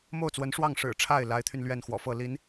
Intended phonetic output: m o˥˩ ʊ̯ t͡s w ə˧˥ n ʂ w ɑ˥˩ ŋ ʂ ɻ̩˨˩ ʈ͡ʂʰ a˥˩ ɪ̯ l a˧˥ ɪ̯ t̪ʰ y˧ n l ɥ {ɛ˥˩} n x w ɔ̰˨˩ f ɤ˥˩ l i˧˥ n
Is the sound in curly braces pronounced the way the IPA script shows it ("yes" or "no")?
yes